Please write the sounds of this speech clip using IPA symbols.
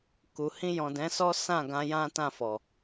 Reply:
ku˨ hĩ˧jɔ̃˨dɛ̃˨˦sɔ˦ sã˦˨ɡã˧ jã˦tã˦˨fɔ˨

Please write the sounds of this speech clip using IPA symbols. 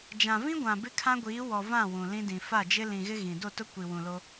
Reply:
d͡ʒã˨vĩ˦ɡʷã˨ bɪ˦kʰã˦ɡʷiː˨˦wɔ˨ vã˦˨ wũ˨lĩ˦dĩ˨ fa˦˨d͡ʒɪ˦ lĩ˨ɣɪ˦ ɣĩ˨ do˦˨tʊ˦ kʷi˨wũ˨ lo˦

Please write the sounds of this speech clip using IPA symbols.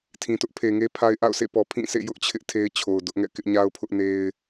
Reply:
tʰĩ˨tʊ˦ʔpʰe˨ŋe˦ pʰa˦ɪ̯ ʔa̰˦˨ʊ̯sʰḛ˦˨pɔ˨ pʰĩ˦˨sʰḛ˦˨ jʊ˦ʔt͡ɕʰɪ˦ʔ tʰe˦ɪ̯t͡ɕʰo˨ʊ̯dʊ˦ʔŋɛ̰˦˨ kɪ˦ʔɲa˦ʊ̯pʰʊ˦ʔne˦ɪ̯

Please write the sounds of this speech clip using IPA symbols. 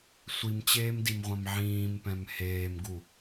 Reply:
sʷimt͡ɕeːmdimʁʷãm ʕĩːmpɛ̃m heːmɡu

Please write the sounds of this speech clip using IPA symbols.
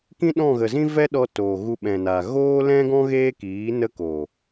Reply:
kĩ˦ɗɔ̃˦˨ɣə˨zĩ˦ vɛ˦ɗɔ˧ toː˨ɣu˧ ɓɛ̃˨na˨ ɣoː˦lɛ̃˦ɡɔ̃˦ ɣeː˦kiː˨˦ nə˦ ko˨

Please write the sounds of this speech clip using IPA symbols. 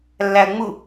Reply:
lːæə̯ŋ͡mu

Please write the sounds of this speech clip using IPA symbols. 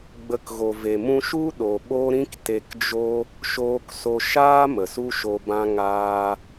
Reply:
ɡ͡bə˧kɣo˨ve˨ mũ˧ʃu˦ ɗo˨ɓo˦ɾĩ˦k te˨kd͡ʒo˧ | ʃoː˧kso˧ʃaː˦ mə˨su˦ ʃo˨bã˧ŋaː˧

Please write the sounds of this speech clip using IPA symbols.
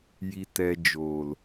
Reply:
ji˧tɛ˧ d͡ʒoː˨l

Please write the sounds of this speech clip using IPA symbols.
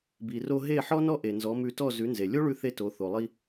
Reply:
bi˩ro˧ ɦe˥˩ ħɔ˥nɔ˥ ʔe˩nzɔ˩˥mʉ˧ tɔ˥˩zʉ˩˥nze˩ lʲo˥ɭʉ˧θe˧ to˩˥ θo˩lˠi˧

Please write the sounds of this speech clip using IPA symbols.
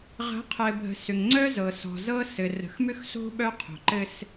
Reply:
ʁə̤˨˦qʰɘ˨bʱə̤˨ sʏ˨ŋŋ͡ǀœ˦zɤ˨ sɔ̤˨zɤ˦sɘ˨ rə̤˨xmʏ˦xso̤˦ ɓœ˦qʰo̤˨ǃɘ˦s

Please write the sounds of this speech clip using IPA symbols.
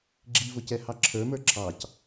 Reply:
ɡ͡ǁivʊcɛ hɑǁʰə˞mə˞ ǁʰɑc

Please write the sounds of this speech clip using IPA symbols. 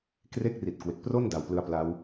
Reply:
kre˥˩k̚ri˨˩t̚ kwe˨˩k̚pro˥˩n da˨˩wplɯ˧a̯pla˦˥w

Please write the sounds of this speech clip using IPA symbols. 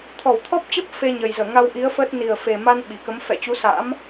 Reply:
t̪ʰɔ˧˩wt̪ʰɔ˦˥p̚t͡ɕə˦˥p̚ fe˧ɲə˨˩jzəː˧˩ ŋa˧wʔi˨˦ə̯ fə˦˥t̚ ni˨˩ə̯fe˨˩ma˧n ɓi˧˩kə˨˦m fɛ̰˧˨t͡ɕu˨˦sa̰ː˧˥m

